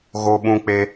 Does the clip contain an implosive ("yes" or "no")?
yes